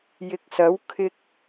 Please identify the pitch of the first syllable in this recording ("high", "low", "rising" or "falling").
rising